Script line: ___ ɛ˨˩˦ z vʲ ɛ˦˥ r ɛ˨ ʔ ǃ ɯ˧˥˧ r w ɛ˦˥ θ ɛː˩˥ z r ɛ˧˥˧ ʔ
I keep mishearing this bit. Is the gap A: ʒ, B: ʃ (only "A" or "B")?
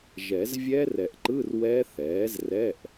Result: A